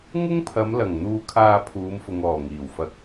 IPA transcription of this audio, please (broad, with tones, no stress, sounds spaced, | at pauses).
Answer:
ŋ ʊ˥ ŋ pʰ ɐ˨˧ m l ɐ˨˩ ŋ n̪ uː˧ kʰ aː˧ pʰ uː˨˧ m f ʊ˨ ŋ ɔː˨˩ ŋ iː˨˩ w f ɐ˧ k̚